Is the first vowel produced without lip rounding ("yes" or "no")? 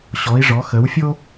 no